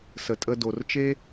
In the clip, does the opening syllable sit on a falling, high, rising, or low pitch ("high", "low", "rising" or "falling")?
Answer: low